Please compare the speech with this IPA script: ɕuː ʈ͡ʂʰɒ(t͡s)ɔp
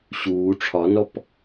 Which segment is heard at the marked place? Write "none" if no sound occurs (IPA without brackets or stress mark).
n